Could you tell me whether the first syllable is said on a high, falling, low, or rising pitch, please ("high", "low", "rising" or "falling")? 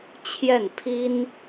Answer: falling